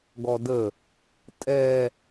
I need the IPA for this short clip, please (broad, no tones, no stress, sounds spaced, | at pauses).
ɡ ɔ d ə | tʼ ɛ